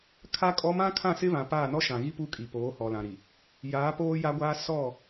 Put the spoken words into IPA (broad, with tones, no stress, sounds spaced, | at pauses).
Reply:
kʰ a˦ kʼ ɔ˦ m ã˦ kʰ ã˦˨ s ɪ˦ β ã˨ p a˦˨ n ɔ˦ ʃ ã˨ ɣ i˦ p u˦ kʼ i˨ p oː˨˦ h ɔ˨ l ã˨ ɾ i˨ | j aː˨˦ p oː˦ j a˦ ɡʷ aː˦ s ɔ˦˨